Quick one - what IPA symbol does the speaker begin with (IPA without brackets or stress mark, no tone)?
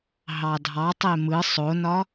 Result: ɦ